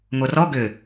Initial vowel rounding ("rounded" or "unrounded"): rounded